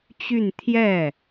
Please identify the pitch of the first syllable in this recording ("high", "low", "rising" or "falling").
falling